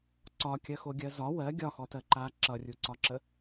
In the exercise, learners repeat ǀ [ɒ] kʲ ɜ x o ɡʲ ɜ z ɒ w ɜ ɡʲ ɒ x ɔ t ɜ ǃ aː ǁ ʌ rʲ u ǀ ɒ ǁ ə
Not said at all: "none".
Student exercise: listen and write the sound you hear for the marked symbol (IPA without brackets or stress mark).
ɒ